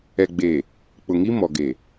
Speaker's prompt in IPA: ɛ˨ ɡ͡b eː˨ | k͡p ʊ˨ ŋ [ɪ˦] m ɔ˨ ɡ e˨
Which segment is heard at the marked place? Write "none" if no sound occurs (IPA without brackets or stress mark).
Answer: i˦